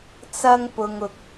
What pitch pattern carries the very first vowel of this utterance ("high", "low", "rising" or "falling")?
high